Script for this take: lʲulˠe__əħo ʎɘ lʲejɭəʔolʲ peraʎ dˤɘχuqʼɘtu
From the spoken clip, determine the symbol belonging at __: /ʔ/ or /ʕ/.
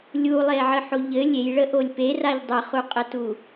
ʕ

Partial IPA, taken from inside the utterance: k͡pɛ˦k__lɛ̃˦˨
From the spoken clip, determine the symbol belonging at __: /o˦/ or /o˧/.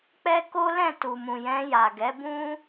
o˦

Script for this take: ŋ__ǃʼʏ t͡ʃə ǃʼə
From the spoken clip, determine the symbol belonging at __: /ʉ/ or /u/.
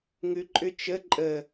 ʉ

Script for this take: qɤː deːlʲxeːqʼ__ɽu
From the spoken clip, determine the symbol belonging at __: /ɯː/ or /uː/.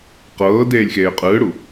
ɯː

